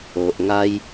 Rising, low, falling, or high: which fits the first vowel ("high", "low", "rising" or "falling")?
low